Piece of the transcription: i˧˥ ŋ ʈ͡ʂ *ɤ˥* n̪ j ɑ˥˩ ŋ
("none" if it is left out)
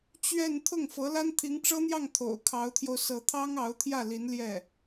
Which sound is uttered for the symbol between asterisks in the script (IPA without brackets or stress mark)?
ɤ˥